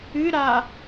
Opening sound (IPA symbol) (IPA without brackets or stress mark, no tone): ɨ